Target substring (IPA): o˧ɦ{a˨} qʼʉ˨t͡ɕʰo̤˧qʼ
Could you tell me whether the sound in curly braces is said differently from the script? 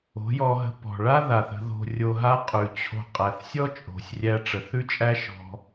yes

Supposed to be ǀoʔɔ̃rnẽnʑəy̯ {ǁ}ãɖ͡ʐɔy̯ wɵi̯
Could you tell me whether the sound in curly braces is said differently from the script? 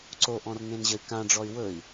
yes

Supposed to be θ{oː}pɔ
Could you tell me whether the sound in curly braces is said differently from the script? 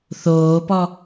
no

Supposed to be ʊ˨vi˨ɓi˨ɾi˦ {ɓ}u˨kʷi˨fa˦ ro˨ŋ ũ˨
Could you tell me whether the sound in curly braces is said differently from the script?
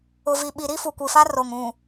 yes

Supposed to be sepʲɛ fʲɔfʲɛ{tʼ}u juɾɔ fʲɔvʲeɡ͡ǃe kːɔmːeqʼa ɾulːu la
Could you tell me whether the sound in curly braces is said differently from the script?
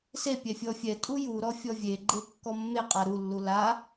no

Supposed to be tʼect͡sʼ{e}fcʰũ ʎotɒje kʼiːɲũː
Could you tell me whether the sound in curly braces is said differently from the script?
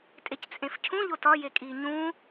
yes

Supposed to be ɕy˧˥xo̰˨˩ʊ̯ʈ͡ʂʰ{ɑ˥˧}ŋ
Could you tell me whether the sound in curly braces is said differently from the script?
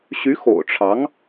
yes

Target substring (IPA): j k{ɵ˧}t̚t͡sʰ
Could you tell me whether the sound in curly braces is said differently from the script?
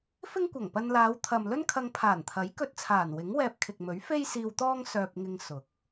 no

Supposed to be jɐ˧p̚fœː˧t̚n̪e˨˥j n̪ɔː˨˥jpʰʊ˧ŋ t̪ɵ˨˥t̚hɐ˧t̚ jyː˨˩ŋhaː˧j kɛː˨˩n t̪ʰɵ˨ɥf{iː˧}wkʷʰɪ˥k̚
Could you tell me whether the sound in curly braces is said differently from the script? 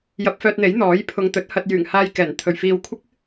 no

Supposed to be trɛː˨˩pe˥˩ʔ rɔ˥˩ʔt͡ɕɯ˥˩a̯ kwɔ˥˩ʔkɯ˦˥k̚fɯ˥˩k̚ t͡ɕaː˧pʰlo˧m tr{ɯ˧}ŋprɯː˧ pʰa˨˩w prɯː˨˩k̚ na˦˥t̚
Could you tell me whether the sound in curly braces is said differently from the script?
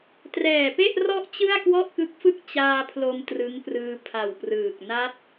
yes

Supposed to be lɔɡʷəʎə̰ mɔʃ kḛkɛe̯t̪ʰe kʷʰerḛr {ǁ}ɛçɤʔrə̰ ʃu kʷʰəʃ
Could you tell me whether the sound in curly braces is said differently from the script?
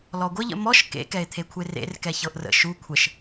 yes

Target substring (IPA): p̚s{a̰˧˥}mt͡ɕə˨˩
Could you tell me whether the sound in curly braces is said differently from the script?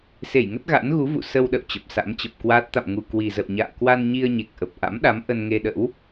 no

